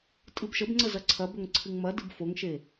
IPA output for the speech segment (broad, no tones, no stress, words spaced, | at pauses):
tʼɨbʃəbŋ͡ǀə zɐǀʰɐbɵŋ ǀʰɨŋmɐdɨb foŋʃe